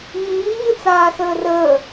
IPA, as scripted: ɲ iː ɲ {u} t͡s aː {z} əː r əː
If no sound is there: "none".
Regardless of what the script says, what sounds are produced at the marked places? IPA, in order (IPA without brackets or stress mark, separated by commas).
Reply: ɯ, s